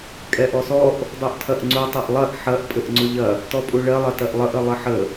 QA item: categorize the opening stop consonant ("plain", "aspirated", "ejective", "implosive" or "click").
ejective